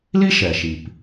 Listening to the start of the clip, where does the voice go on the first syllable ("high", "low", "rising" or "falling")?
high